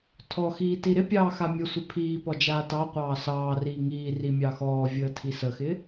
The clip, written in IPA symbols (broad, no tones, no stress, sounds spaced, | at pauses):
tʰ ɔ x iː t i ɾ ɪ pʲ ɑː x a mʲ ə sʷ ɪ pʰ iː p ɔ d͡ʒ aː t ɑ qʷ ɑː s ɑː r iː ŋ iː r i mʲ ɑ x ɔː vʲ əː tʰ i s ə x ɪ